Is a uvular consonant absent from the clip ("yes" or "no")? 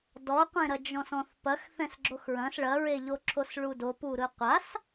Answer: no